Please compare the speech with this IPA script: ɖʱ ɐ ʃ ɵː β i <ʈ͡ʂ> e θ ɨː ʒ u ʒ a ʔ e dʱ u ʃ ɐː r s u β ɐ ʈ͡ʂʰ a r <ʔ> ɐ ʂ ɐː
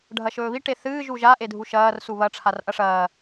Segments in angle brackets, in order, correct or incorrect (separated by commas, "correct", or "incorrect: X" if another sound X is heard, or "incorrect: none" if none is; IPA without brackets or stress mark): incorrect: ʈ, correct